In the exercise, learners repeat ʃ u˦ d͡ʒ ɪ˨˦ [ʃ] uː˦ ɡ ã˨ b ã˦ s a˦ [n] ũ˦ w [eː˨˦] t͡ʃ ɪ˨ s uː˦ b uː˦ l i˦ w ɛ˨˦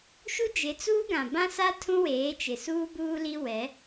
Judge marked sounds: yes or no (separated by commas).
no, no, yes